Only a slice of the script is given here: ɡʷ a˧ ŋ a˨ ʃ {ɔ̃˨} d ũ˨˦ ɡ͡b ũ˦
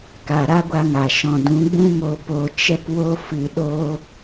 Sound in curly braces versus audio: correct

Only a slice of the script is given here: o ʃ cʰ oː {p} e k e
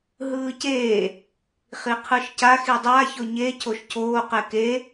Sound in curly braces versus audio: incorrect: q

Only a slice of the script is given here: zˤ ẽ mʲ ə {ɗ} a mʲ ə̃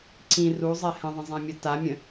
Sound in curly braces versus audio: incorrect: t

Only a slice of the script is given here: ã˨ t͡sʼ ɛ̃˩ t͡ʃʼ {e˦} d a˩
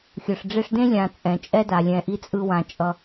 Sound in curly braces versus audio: incorrect: ɛ˦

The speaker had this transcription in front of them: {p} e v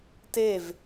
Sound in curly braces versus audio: incorrect: t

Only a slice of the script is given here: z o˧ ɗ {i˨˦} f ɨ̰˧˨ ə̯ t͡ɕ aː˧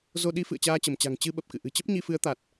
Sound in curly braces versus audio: correct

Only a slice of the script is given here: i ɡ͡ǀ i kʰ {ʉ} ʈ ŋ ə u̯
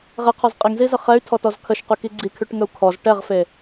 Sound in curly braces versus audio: correct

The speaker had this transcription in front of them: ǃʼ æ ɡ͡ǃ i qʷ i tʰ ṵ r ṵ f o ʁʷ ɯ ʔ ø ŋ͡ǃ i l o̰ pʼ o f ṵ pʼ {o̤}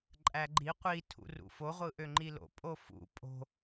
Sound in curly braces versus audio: correct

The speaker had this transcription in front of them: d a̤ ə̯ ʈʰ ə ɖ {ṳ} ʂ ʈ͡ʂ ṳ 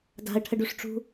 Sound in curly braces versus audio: incorrect: u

